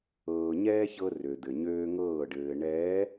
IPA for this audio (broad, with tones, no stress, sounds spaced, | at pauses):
ɤː˨ ɲ ɛː˦ ç ɤ˦ r ø˨ d̪ ɘ˨ ɲ øː˦ ŋ ɤː˦˨ ɖ ɘː˨ ɳ ɛː˨˦